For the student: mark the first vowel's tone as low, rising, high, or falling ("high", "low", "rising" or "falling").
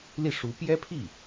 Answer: falling